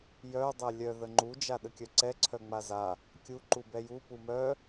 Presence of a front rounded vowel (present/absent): present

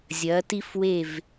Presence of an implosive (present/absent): absent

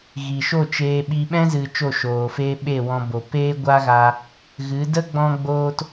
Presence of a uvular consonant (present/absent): absent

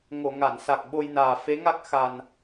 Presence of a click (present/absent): absent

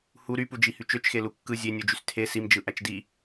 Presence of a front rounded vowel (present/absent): present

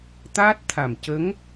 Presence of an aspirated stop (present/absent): present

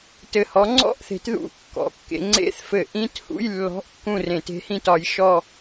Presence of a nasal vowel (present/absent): present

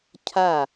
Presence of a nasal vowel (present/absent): absent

